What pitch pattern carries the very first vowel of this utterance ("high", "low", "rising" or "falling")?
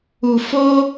low